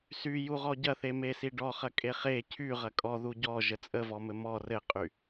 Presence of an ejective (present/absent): present